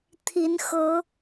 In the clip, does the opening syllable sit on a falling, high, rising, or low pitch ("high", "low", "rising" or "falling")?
rising